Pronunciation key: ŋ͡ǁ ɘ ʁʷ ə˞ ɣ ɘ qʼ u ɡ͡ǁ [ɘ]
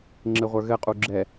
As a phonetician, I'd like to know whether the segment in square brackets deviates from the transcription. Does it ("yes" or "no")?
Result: yes